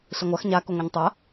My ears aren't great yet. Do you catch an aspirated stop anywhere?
no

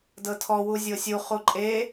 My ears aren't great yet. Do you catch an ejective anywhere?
yes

